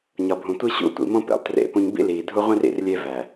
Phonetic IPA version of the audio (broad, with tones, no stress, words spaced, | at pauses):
ɲɒ˨bʱũ˨ tʷi˦ɕṵ˦˨tʷḭ˨mõ˦ pḛ˨lˠtrḛ˦˨pũ˦ɲ bḭ˦liː˨dʱu˦ʁʷĩ˦r ḭ˨rlʲe˦ væ˨